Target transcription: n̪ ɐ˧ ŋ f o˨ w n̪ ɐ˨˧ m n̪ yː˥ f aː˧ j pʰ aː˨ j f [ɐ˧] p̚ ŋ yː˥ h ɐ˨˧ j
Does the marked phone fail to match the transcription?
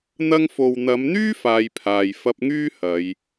no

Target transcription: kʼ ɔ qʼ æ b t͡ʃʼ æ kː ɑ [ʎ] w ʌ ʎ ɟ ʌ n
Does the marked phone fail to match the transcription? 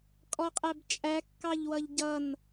no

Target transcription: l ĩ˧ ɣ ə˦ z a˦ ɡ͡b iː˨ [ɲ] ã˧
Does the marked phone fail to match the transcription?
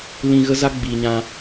no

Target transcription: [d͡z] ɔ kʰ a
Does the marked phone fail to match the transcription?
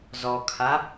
yes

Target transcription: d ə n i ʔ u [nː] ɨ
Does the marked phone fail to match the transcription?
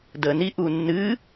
no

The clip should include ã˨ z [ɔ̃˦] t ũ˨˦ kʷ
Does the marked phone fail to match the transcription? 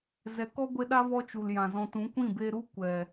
yes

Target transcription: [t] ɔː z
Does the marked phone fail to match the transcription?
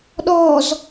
yes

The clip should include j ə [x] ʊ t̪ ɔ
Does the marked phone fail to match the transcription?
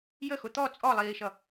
no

